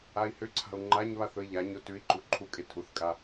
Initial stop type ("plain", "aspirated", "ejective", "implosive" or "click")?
click